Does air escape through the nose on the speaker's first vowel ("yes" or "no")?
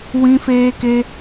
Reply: yes